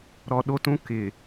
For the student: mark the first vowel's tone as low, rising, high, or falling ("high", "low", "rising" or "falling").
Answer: low